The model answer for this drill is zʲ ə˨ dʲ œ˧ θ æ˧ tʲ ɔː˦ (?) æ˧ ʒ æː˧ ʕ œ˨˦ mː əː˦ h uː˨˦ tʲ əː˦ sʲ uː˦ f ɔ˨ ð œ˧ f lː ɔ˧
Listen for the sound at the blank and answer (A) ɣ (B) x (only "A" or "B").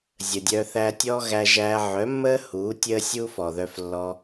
A